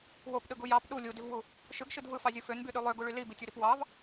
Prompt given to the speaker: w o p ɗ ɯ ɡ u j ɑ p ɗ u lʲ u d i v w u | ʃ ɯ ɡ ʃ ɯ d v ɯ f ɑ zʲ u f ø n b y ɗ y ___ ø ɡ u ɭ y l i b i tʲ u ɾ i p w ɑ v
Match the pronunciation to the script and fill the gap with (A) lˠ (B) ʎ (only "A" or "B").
A